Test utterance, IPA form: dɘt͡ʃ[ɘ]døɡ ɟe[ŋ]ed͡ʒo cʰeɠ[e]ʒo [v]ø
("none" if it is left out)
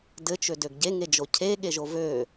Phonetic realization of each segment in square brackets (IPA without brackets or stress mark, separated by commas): ø, ŋ, e, v